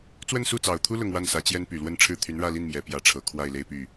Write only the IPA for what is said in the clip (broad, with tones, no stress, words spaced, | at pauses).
t͡swə˥˧nsu˥˩t͡sɑ˨˩ʊ̯t̪ʰu˥ lʊ˥˧ŋwa˥˩nsä˧˥ t͡ɕjɛ˥npy˨˩lwə˥˧nʈ͡ʂʰɻ̩˥˩ t̪ʰy˧˥nɻä˥˧li˥˩n mjɛ˨˩pjä˧˥ʈ͡ʂʰɤ˨˩ kʰwa˥˩ɪ̯le˥ɪ̯py˥˩